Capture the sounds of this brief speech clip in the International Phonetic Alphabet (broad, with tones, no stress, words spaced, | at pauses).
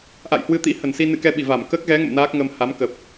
ʔa̰˧˨jhwɨ˧t̪ḭ˧˥ hə˧˩nsi˧ nɨ̰˧˨kɛ˧ɓi˧˩ va˧˩m kəː˦˥k̚ɣɛ˨˦ŋə̰˧˨m naː˦˥k̚ŋə˧m ha˨˦mkə˨˩p̚